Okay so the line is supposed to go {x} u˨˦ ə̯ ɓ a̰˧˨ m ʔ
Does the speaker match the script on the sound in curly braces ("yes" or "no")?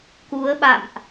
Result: no